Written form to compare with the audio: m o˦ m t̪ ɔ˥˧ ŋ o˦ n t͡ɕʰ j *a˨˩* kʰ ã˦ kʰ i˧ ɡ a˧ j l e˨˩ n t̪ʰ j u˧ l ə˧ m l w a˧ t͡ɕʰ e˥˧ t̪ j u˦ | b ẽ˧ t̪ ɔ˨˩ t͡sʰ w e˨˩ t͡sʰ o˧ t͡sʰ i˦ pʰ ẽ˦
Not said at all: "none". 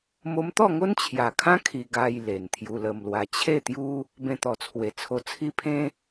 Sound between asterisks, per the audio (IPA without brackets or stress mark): a˨˩